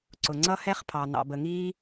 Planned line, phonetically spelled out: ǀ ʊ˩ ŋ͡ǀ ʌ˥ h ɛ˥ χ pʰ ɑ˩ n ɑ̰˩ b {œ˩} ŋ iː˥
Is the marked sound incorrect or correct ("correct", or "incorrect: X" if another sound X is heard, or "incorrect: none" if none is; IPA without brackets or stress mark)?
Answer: incorrect: ə˩